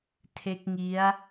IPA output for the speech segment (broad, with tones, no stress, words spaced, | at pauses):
tʰe˦˥k̚ŋi˦˥a̯